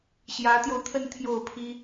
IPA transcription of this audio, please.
ɕ j ä˧˥ t̪ j o˧ ʊ̯ t̪ʰ ə˥˧ n t̪ʰ j o˥˩ ʊ̯ pʰ i˥

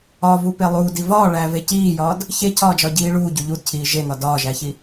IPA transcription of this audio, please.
ɒ v u p e lˠ uː d i v ɒː ɭ æ v e c iː j ɒː d | ç e cʰ ɒː d͡ʒ ɒ ɟ iː ɭ uː ɟ u ʎ u d cʰ iː ʒ e n̪ ɒ d ɒː ʒ æ ç i

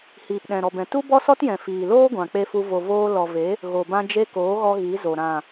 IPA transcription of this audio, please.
h iː˨ p ɗ ɛ̃˨ ɾ ɔ˨ b ɛ̃˨ t u˦ b ɔ˦ s ɔ˦ t j ɛ̃˨ f iː˨ l oː˦ ɡʷ ã˨ k͡p e˧ f u˧ v o˨ v oː˧ l ɔ˨ v e˨˦ | ɣ o˨ b ã˧ d͡ʒ e˧ k oː˨˦ ɣ ɔ˧ ɣ i˨˦ z o˨ ɾ ã˨

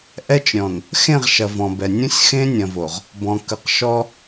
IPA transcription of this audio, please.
ʔ ɛ˦ t͡ʃ ɾʲ ɔ̃˨ n | x ẽ˦˨ ʁ ʃ ɐ˨ v ɔ̃˨ b ɛ˨ nʲ ũ˦ sʲ x ẽ˦ nʲ ɐ̃˨ v o˨ ʁ | b ɔ̃˨ k ə˨ q ʃ ɔ˦

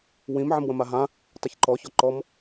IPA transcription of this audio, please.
w ĩ m ʕ ə̃ m w ə̃ m a ɦ ã | tˤ ə ç ǃ ɔ ç ɔ ǃ ɔ m

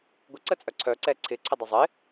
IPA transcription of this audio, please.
ɡʷ ɪ ǀ ə t͡sʼ œ ǀʰ œ ǀ ɛ ǀʰ ɪ ǀʰ ə dˤ ʌ zˤ ɪ

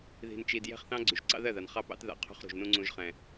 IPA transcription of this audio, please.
ð i̤˨ n t͡ʃ i˨ d j ɛ̤˦˨ χ θ ɑ̃˦ ɡ͡ǀ y˨ ʒ ǀ ɑ̰˦ ð ɜ˦˨ ð a˨ n χ ɑ˦ p ɑ̰˦ t ð a̰˨ qʰ ṳ˦ χ ɾ ṳ˨ ʒ n ũ˦ ŋ͡ǀ ũ˦ ʒ χ ɛ̃˦

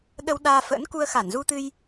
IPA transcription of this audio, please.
ɗ ə˧ w ɗ aː˧ f ə̰ː˧˥ n k u˧ ə̯ x a˧˩ n z u˧ t̪ ɨ˧ j

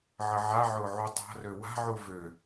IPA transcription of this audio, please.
ʕ ə ʕ a ʕ ʊː ʕ u tˤ a̤ r ø w a̤ ʕ u v ø

